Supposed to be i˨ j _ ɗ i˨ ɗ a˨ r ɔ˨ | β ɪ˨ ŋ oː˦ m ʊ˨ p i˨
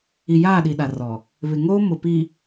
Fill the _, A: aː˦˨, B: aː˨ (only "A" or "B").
A